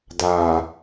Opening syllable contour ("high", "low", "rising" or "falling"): low